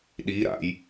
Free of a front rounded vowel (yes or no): yes